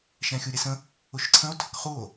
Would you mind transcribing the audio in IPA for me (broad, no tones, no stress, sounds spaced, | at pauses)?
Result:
ʃ ɛ̃ xʲ u ɾʲ ɛ s ə̃ | ʊ ʃ ǀʰ ə̃ o̯ tʰ ə k χ u o̯